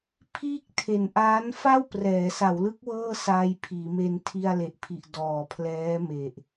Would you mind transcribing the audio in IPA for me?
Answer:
pʰ iː˥˩ k̚ tʰ e˨˩ n ʔ aː˦˥ n f a˥˩ w p r ɛː˩˦ s a˩˦ w l ɯ˦˥ k̚ w ɤː˥˩ s aː˧ j pʰ iː˩˦ m e˧ n tʰ i˧ a̯ l e˨˩ ʔ pʰ i˨˩ ʔ d ɔː˨˩ pʰ l ɛː˦˥ m e˨˩ ʔ

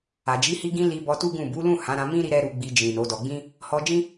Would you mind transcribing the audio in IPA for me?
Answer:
a˨ d͡ʒ i˨˦ h i˧ ɡ ĩ˧ l i˧ b ɔ˧ t u˦ ɡ ũ˦˨ b u˨˦ l ũ˦˨ h ã˨˦ ɾ ã˧ m ĩ˦ ɾ i˧ ɾ ɛ˦ ɾ u˧ ɡ͡b i˧ d͡ʒ ĩ˨ n o˨˦ d ɔ˧ ɡ͡b ĩ˦ | h ɔ˧ d͡ʒ ĩ˦

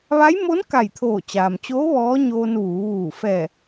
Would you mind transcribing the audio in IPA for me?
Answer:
ʋ a˧˥ j m o˧˥ n k a˧˩ j t̪ʰ oː˧˩ t͡ɕ aː˩ m t͡ɕ oː˧˥ ʋ ɔː˧˥ ɲ oː˧ n ʋ uː˩˧ ʋ uː˧˩ f ɛː˧˩

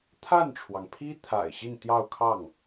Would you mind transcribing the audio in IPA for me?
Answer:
t̪ʰ a˥˩ n ʈ͡ʂʰ w ɑ˩ ŋ pʰ i˥ t̪ʰ a̰˨˩ ɪ̯ ɕ i˥˧ n t̪ j ɑ˥˧ ʊ̯ kʰ ɑ˥˩ ŋ

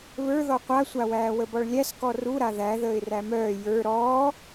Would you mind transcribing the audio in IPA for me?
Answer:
β ə˞ ð ɔ qʷ a sʷ a w æː w ə b ɔ ɭ lʲ æ s k ɔ r u ɾ a ð æ ð əː ɪ̯ r æ m œː j ə˞ ɾ ɔː

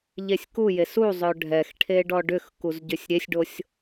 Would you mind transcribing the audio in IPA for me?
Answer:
ʎ e sʲ k u j e s u zˤ œ ɖʱ ɛ x ʈʰ e ɖ ɔ ɖ ʏ x k u z ɟ ʏ sʲ ɾʲ e sʲ ɖ o sʲ

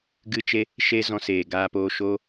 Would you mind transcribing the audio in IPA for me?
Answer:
ɡ ɨ˦ t͡ʃ e˦ | ʃ e˦ z ɔ̃˧ s eː˨ ɡ aː˧ p oː˧ ʃ oː˦

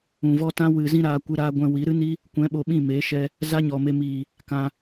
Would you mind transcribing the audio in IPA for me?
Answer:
ũ˨ v ɔ˦ t ã˦ w ɨ˨ z ĩ˦ ɾ aː˧ kʷ ɨ˧ ɾ aː˧ ɡʷ ɛ̃˨ w i˨˦ ɾ ɨ˦ n i˦ | kʷ ɛ̃˨˦ ɓ o˨ ɓ ĩ˦˨ m eː˨˦ ʃ ɛ˧ | z a˦ ɲ ɔ˨ m e˧ m iː˨ | k ã˧

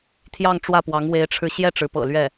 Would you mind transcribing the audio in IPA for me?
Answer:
t̪ʰ j ɑ˥˧ ŋ ʈ͡ʂ w ä˥˩ p w ɑ˧˥ ŋ w e˧˥ ɪ̯ ʈ͡ʂʰ ɻ̩˧ ɕ j ɛ˥˩ ʈ͡ʂ ɻ̩˧˥ p ɤ̰˨˩ l ɥ ɛ˥˩

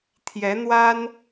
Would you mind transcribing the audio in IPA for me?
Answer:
t̪ʰ j ɛ˧˥ n̪ w a˥ n

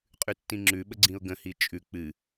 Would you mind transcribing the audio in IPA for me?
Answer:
qʼ ʉ tː ĩ ŋ͡ǁ ʉ ɓ ə ɡ͡ǀ ĩ ʊ̯ ɡ ə̃ h i t͡ʃʼ ʉ k͡p ɨ

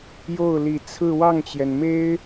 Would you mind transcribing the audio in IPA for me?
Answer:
j o˥˩ ʊ̯ l i˨˩ t͡sʰ ɹ̩˥˧ w ɑ˥˩ ŋ t͡ɕ j ɛ˩ n m e˥ ɪ̯

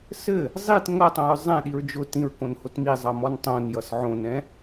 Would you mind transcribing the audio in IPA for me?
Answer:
s ɘ | zˤ i t ŋ ʌ tˤ õ ɹ zˤ ɛ̃ ɗ i ɹ d͡ʒ ʊ t ĩ ɹ k õ n h o t m i zˤ ʌ m ɔ n tˤ õ n j ʌ s ʕ õ n ɛ̃

